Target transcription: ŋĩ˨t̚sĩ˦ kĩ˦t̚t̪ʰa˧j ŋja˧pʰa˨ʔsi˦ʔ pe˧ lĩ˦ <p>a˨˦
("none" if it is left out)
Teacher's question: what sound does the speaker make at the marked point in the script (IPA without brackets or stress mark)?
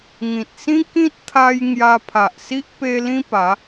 p